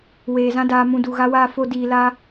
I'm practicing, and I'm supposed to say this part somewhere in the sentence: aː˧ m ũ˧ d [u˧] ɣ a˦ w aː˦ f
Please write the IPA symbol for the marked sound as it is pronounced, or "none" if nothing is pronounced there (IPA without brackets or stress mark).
u˨